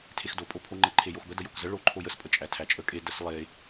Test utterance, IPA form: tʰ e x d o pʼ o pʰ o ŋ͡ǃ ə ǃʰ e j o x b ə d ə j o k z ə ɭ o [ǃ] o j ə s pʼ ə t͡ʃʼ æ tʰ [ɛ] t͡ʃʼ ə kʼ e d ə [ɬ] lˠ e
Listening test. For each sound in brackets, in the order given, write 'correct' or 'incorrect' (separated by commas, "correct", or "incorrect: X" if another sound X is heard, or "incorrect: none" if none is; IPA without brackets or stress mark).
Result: incorrect: ǃʰ, incorrect: æ, incorrect: s